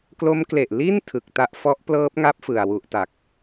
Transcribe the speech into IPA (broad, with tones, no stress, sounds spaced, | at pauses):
k l o˦˥ m k l e˨˩ ʔ l i˥˩ n tʰ ɯ˨˩ k̚ t a˥˩ ʔ f ɔ˦˥ ʔ p l ɤː˦˥ p̚ ŋ a˦˥ p̚ f ɯ˨˩ a̯ w u˦˥ ʔ t a˨˩ k̚